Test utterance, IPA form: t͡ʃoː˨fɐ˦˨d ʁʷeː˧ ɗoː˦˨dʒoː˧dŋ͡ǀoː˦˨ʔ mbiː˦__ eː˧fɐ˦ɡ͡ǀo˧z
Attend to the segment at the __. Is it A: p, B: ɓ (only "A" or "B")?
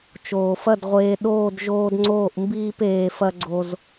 A